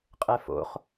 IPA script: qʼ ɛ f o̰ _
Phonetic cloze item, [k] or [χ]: χ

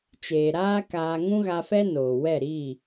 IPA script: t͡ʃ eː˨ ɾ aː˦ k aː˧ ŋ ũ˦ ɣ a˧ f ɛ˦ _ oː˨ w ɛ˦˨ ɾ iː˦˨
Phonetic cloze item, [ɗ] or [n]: n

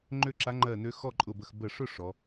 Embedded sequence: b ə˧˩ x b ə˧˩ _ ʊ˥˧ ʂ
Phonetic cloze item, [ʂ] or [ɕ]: ʂ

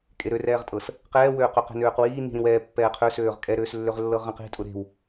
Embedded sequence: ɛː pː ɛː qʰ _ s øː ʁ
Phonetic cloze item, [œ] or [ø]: ø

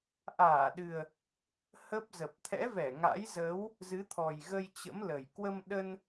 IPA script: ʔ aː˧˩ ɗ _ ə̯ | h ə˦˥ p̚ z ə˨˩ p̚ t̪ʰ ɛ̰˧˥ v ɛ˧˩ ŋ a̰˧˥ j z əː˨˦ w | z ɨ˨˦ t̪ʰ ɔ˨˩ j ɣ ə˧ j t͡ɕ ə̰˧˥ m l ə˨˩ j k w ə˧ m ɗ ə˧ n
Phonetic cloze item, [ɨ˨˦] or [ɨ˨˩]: ɨ˨˩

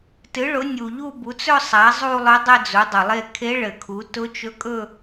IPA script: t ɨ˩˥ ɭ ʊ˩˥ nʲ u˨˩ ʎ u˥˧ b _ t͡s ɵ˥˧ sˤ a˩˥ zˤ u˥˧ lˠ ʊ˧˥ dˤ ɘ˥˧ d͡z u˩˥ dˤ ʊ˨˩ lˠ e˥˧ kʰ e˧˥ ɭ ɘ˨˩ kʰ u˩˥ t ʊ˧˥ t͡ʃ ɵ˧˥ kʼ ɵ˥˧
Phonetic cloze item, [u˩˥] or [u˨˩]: u˩˥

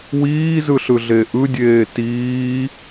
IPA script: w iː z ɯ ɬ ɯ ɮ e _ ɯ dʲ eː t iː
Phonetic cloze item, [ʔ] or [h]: ʔ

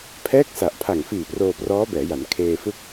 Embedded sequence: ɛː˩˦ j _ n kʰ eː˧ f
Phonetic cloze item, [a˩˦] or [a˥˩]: a˩˦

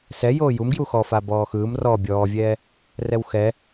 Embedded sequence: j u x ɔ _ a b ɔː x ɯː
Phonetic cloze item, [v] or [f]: f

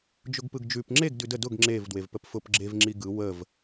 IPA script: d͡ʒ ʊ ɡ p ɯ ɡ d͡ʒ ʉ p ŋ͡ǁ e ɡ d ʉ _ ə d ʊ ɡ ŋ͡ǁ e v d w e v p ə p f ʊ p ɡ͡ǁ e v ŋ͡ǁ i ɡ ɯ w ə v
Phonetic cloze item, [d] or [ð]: d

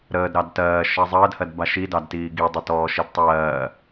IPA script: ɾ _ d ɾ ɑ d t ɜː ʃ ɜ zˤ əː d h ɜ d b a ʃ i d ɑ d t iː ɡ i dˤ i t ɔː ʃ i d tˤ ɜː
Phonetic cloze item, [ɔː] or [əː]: əː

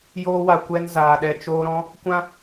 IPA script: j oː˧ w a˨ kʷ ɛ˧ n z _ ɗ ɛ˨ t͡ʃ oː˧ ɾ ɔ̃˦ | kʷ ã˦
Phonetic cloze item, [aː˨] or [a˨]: aː˨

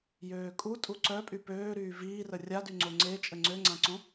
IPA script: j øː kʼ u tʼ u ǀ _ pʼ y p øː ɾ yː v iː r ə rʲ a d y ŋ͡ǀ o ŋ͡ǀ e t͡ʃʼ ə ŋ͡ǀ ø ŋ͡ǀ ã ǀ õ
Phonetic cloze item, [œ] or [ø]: œ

